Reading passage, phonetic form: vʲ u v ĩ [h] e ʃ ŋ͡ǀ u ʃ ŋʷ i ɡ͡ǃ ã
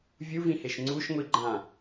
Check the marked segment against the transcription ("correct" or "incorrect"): correct